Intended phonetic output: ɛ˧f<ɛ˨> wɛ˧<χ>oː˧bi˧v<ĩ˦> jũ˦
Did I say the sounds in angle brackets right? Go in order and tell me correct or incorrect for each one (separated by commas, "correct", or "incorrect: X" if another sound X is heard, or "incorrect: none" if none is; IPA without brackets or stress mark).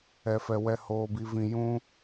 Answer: incorrect: ɛ˧, incorrect: h, incorrect: ĩ˧